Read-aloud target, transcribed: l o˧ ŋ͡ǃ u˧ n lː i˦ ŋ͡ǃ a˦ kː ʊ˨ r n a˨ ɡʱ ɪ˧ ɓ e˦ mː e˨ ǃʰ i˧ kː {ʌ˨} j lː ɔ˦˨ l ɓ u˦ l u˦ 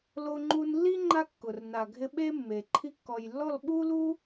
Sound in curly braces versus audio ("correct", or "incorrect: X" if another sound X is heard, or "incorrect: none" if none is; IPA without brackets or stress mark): incorrect: ɔ˨